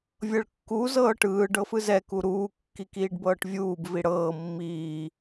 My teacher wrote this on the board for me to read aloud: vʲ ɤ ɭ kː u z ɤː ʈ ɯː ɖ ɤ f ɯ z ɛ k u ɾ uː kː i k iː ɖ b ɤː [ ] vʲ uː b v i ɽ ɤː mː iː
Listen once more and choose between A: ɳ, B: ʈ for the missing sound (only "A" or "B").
B